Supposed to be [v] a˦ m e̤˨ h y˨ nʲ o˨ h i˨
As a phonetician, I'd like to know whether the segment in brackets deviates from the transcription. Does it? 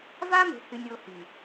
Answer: no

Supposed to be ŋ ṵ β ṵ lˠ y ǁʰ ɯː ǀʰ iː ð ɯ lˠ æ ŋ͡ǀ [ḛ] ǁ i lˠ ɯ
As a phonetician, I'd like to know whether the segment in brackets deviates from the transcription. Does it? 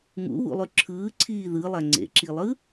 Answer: no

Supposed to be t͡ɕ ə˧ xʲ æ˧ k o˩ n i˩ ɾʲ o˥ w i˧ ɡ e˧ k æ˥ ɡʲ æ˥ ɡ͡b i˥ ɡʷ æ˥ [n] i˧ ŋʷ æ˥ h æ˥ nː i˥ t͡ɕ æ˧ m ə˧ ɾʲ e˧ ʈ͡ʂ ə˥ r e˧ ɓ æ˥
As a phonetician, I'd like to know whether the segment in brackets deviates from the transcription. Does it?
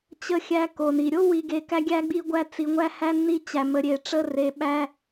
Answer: yes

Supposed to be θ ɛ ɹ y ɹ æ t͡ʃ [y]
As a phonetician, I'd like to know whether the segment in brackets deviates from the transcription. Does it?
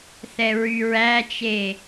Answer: yes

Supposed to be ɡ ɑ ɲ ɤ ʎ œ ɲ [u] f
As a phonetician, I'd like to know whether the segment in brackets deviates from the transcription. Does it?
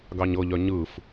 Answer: yes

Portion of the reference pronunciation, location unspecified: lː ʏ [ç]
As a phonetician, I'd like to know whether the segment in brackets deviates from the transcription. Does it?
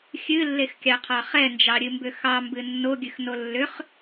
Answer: yes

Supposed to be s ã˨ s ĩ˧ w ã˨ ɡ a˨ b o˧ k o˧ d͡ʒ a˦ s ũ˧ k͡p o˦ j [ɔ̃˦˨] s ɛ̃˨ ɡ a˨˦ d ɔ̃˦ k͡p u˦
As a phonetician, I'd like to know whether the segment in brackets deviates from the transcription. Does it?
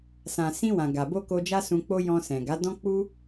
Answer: yes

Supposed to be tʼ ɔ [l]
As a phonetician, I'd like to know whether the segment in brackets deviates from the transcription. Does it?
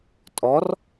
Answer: yes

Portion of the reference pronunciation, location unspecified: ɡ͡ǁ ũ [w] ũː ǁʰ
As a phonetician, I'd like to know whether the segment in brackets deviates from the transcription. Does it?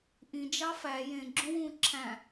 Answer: no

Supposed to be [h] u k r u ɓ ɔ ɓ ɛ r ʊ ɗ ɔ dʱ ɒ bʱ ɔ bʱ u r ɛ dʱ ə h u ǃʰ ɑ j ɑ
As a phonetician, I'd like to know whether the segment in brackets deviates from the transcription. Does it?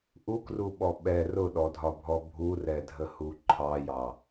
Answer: yes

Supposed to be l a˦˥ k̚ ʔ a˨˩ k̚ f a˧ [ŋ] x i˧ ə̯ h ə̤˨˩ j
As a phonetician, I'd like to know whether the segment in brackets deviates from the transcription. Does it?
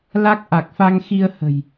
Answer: no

